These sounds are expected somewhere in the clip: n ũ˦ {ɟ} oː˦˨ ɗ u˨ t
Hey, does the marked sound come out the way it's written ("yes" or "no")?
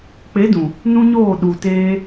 no